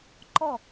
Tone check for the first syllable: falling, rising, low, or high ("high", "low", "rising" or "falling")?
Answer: falling